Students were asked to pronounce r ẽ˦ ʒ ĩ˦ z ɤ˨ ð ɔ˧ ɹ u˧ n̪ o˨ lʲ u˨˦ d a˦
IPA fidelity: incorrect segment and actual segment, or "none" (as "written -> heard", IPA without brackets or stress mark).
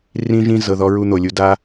ẽ˦ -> ĩ˦